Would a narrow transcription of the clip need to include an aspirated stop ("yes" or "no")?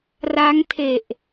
yes